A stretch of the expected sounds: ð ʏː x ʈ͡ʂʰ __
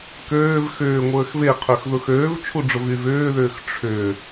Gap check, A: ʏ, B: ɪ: A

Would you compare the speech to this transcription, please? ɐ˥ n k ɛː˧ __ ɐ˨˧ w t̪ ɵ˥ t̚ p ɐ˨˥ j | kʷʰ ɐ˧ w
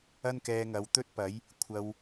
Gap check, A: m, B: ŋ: B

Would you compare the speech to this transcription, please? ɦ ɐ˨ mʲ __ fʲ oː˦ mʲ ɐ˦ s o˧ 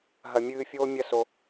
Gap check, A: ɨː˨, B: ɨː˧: B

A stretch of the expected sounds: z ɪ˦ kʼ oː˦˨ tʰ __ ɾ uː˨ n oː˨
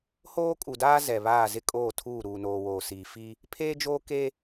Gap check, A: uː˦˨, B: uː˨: A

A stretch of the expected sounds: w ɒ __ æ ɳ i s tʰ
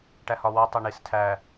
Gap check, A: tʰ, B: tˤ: B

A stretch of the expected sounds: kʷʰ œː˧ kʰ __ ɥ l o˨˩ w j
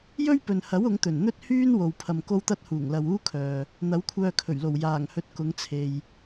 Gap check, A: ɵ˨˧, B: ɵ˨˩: B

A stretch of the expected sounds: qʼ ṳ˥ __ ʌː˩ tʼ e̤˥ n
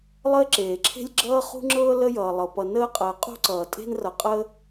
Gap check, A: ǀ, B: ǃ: A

